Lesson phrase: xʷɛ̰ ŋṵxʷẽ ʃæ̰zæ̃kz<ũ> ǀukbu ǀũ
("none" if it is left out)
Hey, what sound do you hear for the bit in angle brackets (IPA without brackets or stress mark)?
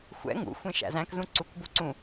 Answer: ũ